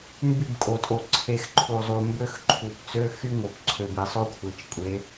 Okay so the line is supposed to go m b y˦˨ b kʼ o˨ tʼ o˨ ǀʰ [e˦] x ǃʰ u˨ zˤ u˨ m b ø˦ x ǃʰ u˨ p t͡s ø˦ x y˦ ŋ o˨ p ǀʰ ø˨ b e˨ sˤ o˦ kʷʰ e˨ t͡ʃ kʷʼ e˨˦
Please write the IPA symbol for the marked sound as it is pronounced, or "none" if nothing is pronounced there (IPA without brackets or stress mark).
e˨